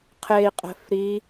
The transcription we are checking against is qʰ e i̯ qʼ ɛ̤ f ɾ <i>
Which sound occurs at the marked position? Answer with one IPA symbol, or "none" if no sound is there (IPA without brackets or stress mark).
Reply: i